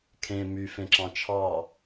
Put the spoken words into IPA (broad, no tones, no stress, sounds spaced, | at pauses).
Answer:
kʰ ẽ m y f ẽ ǁ ɑ̃ t͡ʃʰ ɑ